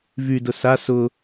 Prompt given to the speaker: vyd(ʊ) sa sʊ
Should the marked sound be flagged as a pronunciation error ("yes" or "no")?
no